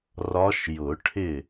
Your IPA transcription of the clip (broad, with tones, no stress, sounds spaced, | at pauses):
r ɒ˧˥ ʃ j ʊ˨˩˦ ʈʰ ɪ˥˩